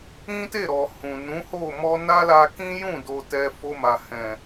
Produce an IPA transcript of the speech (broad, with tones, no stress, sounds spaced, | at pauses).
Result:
ĩ˦ t e˦˨ ɾ ɔ˨ h ũ˨ n ũ˨˦ h o˦˨ m ɔ˧ n a˦ l a˧ k ĩ˦ j ũ˦˨ d o˧ t ɛ˧ f o˧ m a˨ h ɛ̃˨